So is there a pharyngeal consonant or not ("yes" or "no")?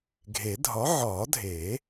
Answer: yes